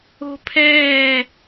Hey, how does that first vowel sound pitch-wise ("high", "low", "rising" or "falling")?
high